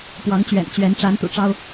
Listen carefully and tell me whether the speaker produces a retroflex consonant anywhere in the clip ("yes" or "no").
yes